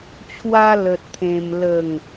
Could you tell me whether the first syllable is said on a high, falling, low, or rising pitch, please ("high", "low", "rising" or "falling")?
high